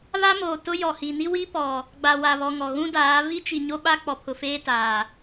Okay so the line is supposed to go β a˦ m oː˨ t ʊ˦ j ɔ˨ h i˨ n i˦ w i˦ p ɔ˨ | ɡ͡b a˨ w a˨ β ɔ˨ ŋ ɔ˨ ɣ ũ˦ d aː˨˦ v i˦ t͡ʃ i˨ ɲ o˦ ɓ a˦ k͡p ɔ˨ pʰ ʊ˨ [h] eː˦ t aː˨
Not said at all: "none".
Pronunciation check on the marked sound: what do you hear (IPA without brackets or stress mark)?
f